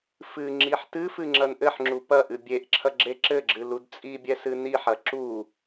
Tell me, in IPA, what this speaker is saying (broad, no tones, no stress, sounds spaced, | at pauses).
f ɨ ŋ͡ǁ i ħ t ɨ f ɨ ŋ͡ǁ ɐ n ʔ ɘ ħ ŋ͡ǁ u p ɐ ʔ ɨ bʲ e ʔ ǁʰ ɐ ɡ͡ǁ e ǁ ɘ ɡ͡ǁ ɨ l u d t͡sʼ i bʲ ɛ s ɨ n i ħ ɐ ǁ u